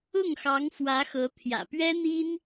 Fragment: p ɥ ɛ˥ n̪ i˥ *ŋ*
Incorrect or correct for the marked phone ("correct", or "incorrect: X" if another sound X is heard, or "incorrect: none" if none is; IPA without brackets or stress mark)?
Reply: incorrect: n